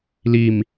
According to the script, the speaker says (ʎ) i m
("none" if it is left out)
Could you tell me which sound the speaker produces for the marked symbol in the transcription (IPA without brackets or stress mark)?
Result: l